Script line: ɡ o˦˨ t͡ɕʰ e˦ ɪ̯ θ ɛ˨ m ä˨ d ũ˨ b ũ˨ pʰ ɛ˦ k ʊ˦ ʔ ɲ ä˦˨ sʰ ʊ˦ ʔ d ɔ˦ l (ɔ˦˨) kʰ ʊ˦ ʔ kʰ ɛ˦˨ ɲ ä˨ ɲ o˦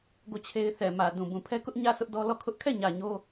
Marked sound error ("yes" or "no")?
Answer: no